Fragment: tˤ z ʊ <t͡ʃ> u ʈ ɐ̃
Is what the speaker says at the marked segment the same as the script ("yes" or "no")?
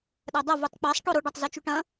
yes